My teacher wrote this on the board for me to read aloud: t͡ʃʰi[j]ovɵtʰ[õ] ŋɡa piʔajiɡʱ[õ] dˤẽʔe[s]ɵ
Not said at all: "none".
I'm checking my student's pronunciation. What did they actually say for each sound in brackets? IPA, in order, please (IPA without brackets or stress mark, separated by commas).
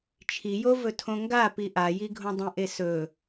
j, õ, õ, s